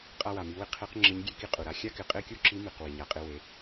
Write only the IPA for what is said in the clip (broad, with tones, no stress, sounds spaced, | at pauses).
qʼ a˧ w a˩ m i˩˧ w ɪ˧ qʰ e˧˥ q ŋ͡ǁ ɪ˧˥ ɲ ɡʲ e˧˥ k i˧ qʼ u˩ ɾ a˧ xʲ a˥ k ɪ˩˧ qʼ e˥ kʲ u˥ ǁ i˧˥ m i˩ q w i˩ ɲ a˩˧ qʼ e˧ w e˩˧